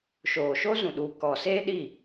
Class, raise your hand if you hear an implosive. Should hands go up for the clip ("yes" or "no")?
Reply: yes